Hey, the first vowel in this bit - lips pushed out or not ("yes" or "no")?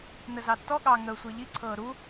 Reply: no